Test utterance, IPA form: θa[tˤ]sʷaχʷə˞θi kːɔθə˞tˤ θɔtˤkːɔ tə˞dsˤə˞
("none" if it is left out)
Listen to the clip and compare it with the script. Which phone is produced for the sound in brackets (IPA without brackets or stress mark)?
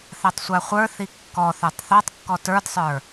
tˤ